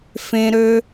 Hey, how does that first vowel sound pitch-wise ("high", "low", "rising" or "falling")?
low